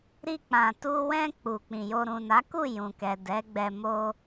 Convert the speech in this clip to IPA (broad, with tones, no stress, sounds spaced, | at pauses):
ɾ i˧ k͡p ã˨ t u˧ w ɛ̃˧ k͡p u˨ k͡p ĩ˨ j o˧ ɾ ũ˨ n a˨˦ k u˦˨ j ũ˨ k ɛ˨ d ɛ˨˦ ɡ͡b ɛ˧ m o˧